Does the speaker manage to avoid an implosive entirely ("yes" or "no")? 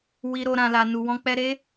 yes